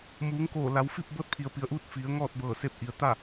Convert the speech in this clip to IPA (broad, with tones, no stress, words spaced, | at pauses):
muː˩˧ŋkoː˧˩ la˩˧wfi˥˨p̚ bɤː˧˥t̚pʰi˩ə̯pi˩˧ə̯ʔuː˧˥t̚ fi˩˧ə̯ ŋɔː˥˨t̚bɤː˧˩ se˧p̚ ʔi˩ə̯ t̪a˥˨